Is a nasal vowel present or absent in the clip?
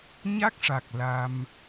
absent